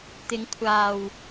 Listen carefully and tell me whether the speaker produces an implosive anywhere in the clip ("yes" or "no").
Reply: no